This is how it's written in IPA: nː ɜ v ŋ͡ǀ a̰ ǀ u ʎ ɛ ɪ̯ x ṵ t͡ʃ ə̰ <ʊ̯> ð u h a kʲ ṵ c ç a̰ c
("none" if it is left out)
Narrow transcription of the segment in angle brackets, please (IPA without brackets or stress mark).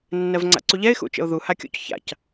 ʊ̯